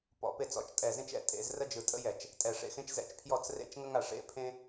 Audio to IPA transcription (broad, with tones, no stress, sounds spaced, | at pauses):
p ɔ̰˧˩˧ p e˥˩ t͡s ɔ̰˧˩ t͡ʃ tʼ ɛ˧˩ z ẽ˥ t͡ʃ ɛ̰˧˩ tʼ ḛ˧˩˧ z r ə˥ d͡ʒ ɯ˧˩ tʼ ə̰˥ j ɛ˧˩˧ t͡ʃ | tʼ ɛ˧˩ ʂ ḛ˧˩ x ẽ˥ t͡ʃ z ɛ̰˧˩ t͡ʃ pʰ j ɔ˥˩ t͡s r ḛ˥˩ t͡ʃ ŋ ə˥ ŋ a˧˩ ʂ ḛ˥˩ pʰ ẽ˥